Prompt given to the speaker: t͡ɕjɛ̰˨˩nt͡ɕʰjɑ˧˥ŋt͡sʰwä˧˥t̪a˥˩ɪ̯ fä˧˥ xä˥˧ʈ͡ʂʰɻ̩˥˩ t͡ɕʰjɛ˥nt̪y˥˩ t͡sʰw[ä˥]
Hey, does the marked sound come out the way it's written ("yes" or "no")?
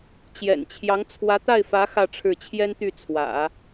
no